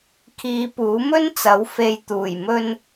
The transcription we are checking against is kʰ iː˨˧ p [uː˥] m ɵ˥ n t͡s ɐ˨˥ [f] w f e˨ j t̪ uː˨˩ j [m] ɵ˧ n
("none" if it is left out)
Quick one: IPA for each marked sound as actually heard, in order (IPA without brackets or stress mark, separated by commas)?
uː˨˥, none, m